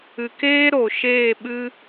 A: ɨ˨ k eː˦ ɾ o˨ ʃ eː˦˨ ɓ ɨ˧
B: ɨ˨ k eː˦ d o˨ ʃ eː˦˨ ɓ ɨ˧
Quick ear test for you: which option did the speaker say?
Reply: A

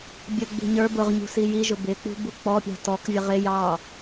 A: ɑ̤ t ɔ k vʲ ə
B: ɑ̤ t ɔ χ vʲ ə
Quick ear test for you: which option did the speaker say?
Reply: A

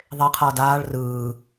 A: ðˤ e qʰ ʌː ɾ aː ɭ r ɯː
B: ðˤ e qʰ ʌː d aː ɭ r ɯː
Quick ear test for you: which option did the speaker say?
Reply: B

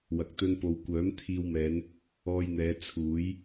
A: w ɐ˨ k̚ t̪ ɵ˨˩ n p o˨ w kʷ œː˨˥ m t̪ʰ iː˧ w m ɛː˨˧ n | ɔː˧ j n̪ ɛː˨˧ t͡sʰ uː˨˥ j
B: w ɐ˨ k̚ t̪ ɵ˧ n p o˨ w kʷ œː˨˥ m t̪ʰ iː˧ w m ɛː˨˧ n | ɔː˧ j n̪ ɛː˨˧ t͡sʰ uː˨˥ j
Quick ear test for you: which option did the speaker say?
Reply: B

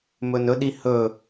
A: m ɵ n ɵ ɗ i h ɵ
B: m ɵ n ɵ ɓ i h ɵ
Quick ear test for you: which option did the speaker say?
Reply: A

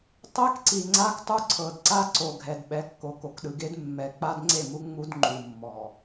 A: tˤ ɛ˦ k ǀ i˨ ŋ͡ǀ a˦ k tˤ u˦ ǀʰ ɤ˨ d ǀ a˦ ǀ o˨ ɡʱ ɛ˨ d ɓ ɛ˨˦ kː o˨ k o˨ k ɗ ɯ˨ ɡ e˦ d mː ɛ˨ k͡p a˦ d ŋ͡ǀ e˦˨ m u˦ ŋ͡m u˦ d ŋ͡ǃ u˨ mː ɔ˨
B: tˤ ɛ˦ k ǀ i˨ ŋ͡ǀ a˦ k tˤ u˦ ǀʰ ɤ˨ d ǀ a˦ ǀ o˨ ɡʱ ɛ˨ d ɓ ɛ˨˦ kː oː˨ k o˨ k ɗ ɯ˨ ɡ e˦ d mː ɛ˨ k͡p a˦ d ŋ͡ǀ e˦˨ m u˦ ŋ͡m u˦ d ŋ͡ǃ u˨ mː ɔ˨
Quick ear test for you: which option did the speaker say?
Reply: A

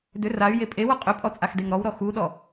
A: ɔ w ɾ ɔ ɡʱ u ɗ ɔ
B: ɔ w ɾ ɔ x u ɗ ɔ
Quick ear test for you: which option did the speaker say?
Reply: B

